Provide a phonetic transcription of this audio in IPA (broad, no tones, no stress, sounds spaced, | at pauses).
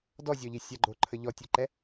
d ɔ zʲ ɔ ʎ i sʲ a ɡ͡ǃ o ǃʰ ə ʎ ɔ tʲ o ǃ ɛ